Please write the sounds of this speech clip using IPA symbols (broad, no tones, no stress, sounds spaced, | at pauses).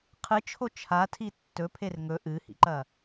qʰ ɨ t͡ʃʰ o t͡ʃʰ a tʰ i tː ɵ pʰ e r ŋ ɵ ʔ ɨ h ḭ ǃ ɐ